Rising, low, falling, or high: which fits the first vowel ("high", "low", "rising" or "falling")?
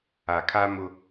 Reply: low